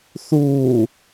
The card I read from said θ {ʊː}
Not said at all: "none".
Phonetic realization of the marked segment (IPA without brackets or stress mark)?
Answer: uː